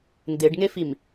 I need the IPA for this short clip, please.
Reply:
ndeɖŋefim

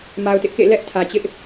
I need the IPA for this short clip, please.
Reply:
ma˨ʊ̯tɪ˦ʔkḛ˦˨ lɛ˦ʔtʰä˨t͡ɕɪ˦ʔ

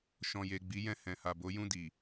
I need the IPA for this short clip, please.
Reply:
ʃɔ̃˨je˨ɡ͡bi˨˦ jɛ̃˧hɛ̃˨ ha˨bo˨˦ jũ˦˨di˨

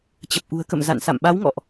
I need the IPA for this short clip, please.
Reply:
t͡ɕə˨˩p̚ʔṳ˨˩ə̯kə̰˧˨m za̰˧˨nsa̰˧˨mɓa˨˦wŋɔ̰˧˨ʔ

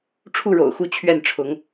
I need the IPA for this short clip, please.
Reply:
ʈ͡ʂʰu˥˩ɻo̰˨˩ʊ̯xu˥˧ t͡ɕʰɥɛ˥˩nʈ͡ʂʰʊ˧˥ŋ

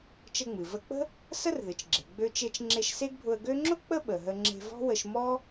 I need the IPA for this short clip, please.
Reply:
t͡ʃə˧ŋ͡mɨ˩və˧k͡pə̤˥ | sə˥rðɨ˩t͡ʃɡ͡ǁe̤˩ ɡ͡bø˧t͡ʃe˧t͡ʃ ŋ͡ǁe˧ʃse˥ɡbʱʊ˧ə̯ ɡø˥ ŋ͡ǁʊ˥ k͡pə˥ ɓə˩ɦə˧ ŋ͡ǁe̤˧vɔ̤˥wə˧ʃ mɔ˥

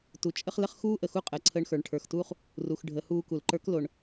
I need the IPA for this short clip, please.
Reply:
tu˩t͡ʃʼə˥χlə˥χ xuː˥ ʔə˩xu˥qʼəː˩ ǀʰəː˧ɳxə˞˩˧ɳʈʰə˞˩xtuː˥χ | ru˩xɖʱə˩˧huː˧ ku˩lǃə˞˧˥k lo˩ɳ

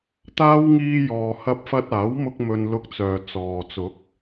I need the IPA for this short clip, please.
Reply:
t̪aː˥w ŋiː˧jɔː˨ hɐ˧p̚fɐ˧t̚aː˨˥wmʊ˧k̚ mɵ˧nlʊ˧k̚t͡sœː˨ t͡sɔː˨ t͡sʊ˨˥k̚

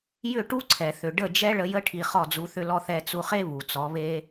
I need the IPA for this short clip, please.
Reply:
jʏ˦˨ʈu˦ǀʰɛ˨θʏ˨ ɖə˦˨d͡ʒɛ˦ɭə˧ jə˦ ʈʰi˧χɔ˦˨d͡zu˧ θʏ˦lɔ˦ θɛ˧t͡su˧χe˦ βu˨t͡sɔ˨˦βe˦

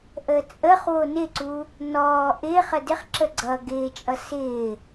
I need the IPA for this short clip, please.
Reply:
ʔəːt͡sʼəχwo nɪǀu | nɔː ʔɪːχə dɪχǁə ɡ͡ǀʌ ɡɪːt͡ʃʼʌ sɪː

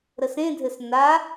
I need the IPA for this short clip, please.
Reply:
ɾəsẽdʱɘs na

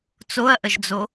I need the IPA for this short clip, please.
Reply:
t͡soɐ̯ʔəʒd͡zo

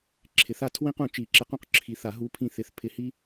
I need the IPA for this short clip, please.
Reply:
ǁʰɪ˨˩˦θa˦ tʰwĩ˦qũ˨˩˦ t͡ʃi˨˩˦ǁɪ˨˥q ũ˦q ǁʰi˨˩˦θa˨˩˦ ɦu˨˥pʰĩ˧˩θɪ˨˩˦θ pʰɪ˨˥hi˦

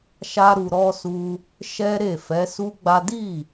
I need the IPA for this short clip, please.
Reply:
ʃa˦ɾu˧ɾɔ˦su˦ | ʃɛ˦ɾe˦˨ fɛ˨˦su˦ɡ͡ba˦ di˦˨

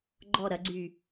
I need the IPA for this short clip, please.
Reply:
ɡ͡ǃɔ ɾɐɡ͡ǀyː

